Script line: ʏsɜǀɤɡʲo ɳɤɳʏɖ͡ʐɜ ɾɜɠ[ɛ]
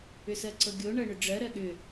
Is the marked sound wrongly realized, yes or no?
yes